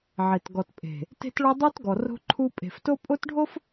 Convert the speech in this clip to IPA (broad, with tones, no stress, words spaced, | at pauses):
ʕe˨t ɡɔ˨tpʼe̤˨ | te̤˦tɭo˦dˤu˦tɡɔ˨ ro̤˦ǃʰu˦ pʼe̤˨fto˦pʼo˦tɖʱo˦f